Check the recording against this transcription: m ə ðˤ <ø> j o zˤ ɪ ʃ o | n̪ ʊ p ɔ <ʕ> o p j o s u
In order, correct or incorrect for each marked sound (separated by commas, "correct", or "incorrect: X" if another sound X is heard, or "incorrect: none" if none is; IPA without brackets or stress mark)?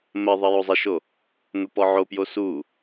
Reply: incorrect: ə, correct